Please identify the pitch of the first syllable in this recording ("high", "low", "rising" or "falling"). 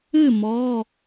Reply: falling